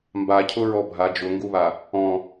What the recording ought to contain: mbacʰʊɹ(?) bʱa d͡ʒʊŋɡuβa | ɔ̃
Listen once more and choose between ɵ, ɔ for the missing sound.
ɔ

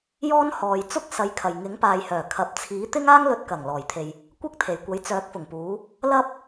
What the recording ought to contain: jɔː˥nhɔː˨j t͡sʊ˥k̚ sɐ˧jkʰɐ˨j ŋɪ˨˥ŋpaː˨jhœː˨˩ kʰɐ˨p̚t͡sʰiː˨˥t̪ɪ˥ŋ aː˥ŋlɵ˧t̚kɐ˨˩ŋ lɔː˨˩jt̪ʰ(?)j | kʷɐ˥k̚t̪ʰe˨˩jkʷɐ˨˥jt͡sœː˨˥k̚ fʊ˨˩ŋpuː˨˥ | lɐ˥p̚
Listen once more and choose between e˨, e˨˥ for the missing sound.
e˨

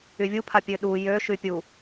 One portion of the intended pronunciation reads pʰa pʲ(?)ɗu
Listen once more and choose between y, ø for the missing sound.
ø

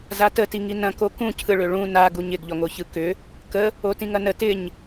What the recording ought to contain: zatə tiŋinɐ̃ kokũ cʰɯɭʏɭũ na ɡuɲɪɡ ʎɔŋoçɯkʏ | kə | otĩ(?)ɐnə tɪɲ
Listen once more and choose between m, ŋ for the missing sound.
ŋ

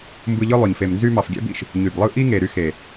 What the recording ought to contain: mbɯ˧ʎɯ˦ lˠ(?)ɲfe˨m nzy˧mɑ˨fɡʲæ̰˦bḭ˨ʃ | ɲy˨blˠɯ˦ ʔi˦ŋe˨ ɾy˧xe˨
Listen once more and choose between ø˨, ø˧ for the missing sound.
ø˨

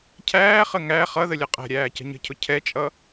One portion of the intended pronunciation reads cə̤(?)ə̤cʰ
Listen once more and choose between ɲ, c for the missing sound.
ɲ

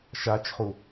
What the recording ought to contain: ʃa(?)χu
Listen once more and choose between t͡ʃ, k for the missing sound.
t͡ʃ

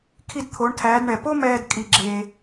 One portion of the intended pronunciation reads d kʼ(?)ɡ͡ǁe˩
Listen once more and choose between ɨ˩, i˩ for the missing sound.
i˩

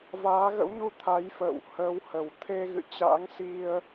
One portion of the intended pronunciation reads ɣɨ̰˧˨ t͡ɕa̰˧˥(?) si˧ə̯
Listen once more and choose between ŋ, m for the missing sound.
ŋ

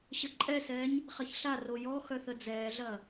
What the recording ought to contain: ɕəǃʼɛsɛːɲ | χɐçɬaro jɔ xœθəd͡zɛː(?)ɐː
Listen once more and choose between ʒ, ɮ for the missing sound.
ɮ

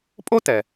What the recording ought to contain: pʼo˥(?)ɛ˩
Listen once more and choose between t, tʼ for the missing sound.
t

